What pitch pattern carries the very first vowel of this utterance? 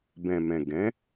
low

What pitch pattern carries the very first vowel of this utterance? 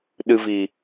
low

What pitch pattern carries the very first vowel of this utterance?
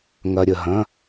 low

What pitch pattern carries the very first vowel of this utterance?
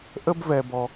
high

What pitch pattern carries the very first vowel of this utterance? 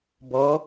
rising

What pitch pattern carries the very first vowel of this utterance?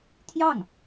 falling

